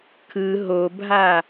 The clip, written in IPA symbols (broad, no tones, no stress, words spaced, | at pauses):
kʰɯ ɦobʱa